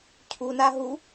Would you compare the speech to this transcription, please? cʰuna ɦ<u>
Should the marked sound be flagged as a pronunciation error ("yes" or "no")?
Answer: no